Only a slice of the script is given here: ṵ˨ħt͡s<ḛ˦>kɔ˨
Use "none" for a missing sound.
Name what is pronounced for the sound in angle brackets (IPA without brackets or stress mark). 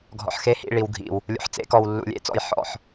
ḛ˨˦